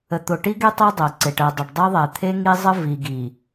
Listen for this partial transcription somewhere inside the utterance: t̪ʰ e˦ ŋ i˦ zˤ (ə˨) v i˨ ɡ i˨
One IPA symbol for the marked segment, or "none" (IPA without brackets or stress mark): ə˦